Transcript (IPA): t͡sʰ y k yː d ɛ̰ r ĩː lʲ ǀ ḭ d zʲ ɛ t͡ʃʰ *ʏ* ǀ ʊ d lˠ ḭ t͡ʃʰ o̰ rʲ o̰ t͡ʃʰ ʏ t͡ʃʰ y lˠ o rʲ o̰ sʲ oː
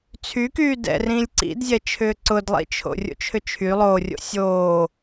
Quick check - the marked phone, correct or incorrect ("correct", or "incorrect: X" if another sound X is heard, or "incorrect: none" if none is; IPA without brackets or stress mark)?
incorrect: ʏː